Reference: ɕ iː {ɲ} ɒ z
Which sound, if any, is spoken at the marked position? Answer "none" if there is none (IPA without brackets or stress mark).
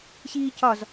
c